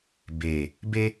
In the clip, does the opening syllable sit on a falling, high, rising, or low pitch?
low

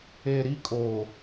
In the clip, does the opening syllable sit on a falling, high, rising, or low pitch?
low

